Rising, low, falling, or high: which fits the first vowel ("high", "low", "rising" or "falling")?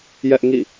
high